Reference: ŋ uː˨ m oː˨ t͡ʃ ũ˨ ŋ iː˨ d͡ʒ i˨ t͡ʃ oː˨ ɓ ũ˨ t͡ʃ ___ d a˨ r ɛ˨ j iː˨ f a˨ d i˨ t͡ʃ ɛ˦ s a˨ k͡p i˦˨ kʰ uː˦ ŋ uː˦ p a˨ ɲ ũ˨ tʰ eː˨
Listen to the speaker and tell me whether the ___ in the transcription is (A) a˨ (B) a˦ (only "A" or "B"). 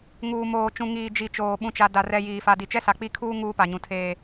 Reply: A